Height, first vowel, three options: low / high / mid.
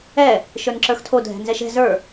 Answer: mid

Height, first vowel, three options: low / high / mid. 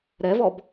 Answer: mid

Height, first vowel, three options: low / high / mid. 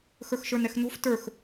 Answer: mid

